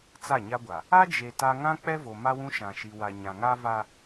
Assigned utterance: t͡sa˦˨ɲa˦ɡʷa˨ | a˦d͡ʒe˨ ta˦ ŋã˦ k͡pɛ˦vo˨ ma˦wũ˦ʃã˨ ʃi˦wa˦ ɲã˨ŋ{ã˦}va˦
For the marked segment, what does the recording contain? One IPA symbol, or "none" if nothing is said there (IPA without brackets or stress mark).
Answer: a˦